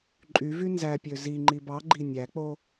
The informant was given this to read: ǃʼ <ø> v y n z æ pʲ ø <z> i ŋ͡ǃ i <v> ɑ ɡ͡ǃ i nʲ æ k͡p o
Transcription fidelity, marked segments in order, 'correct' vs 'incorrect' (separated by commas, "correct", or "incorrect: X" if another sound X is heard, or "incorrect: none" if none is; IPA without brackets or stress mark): incorrect: y, correct, incorrect: b